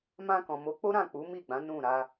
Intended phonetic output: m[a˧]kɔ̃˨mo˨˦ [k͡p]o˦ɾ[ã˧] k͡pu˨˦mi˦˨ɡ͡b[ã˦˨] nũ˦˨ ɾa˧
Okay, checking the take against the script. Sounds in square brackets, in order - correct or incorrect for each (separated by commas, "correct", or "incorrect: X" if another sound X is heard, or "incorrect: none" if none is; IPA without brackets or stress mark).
incorrect: ã˧, correct, incorrect: ã˦˨, incorrect: ã˨˦